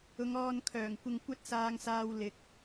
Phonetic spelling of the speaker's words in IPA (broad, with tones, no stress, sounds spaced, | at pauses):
ʊ˨˧ ŋ ɔː˧ n kʰ œː˨˩ ŋ kʷ ɪ˧ ŋ kʷ ɐ˥ t̚ s aː˧ ŋ s aː˧ w l ɪ˨ k̚